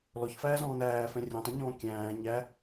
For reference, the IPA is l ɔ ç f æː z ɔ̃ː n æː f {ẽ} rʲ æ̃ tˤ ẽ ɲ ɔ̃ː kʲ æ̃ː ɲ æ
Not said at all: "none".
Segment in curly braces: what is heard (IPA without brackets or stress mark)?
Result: ɛ̃